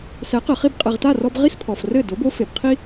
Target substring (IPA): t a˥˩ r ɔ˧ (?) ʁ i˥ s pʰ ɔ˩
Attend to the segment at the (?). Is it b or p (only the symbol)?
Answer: b